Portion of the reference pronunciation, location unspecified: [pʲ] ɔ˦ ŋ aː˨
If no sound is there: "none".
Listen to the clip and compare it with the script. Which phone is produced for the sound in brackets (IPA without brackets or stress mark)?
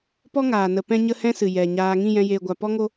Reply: p